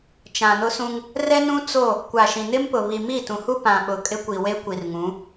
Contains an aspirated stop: no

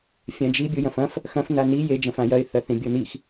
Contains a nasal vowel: yes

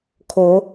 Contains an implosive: no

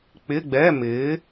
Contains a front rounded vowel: no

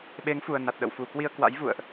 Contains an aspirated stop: no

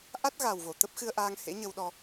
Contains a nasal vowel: no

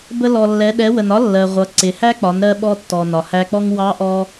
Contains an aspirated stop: no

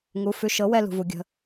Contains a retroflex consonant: no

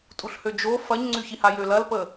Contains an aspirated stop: no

